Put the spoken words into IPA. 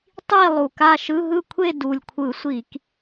tˤ i˥˨ lˠ u˨˩ k a˥˨ ʃ ɯ˧˥˧ ɦ ɯ˥˨ kʷʰ e˥˨ d u˨˩ lʲ kʷʰ ɯ˧˩˧ sʷ i˧˩˧ k

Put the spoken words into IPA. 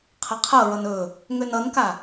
qʰ ʌ qʰ ɤ ɹ ʌ n ɵ | ŋ ø n ʌ n k a

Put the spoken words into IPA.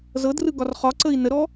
z ɤ d r ɯ ɡ ɒ r χ ɒ ǀ ə i̯ n ə ɾ ɔ

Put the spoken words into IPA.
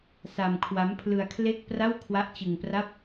s a˧ m kʰ w a˦˥ m pʰ l ɯ˧ a̯ kʰ l e˥˩ k̚ p r a˥˩ w kʰ w a˦˥ ʔ t͡ɕ ɯ˧ ŋ p r a˥˩ p̚

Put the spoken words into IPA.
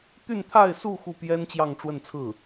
t̪ y˥˧ n t̪ʰ a˥˧ ɪ̯ s u˥˧ x u˥˩ p j ɛ˥ n t͡ɕ j ɑ˥˧ ŋ ʈ͡ʂ w ə˥˧ n t͡sʰ ɹ̩˥˩

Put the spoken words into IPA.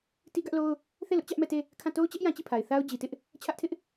t i˦ ɡ ä˦ ʔ l o˦ ʊ̯ | θ e˦˨ l ʊ˦ ʔ t͡ɕ ä˦ ʔ m ɛ˦˨ t e˦˨ | kʰ ã˦˨ t o˦ ʊ̯ t͡ɕ ɛ˦ ʔ j ã˦ t͡ɕ i˦˨ pʰ a˨ ɪ̯ θ a˦ ʊ̯ d͡ʑ i˨ t ɪ˦ ʔ | t͡ɕʰ ä˦ ʔ tʰ ɪ˦ ʔ

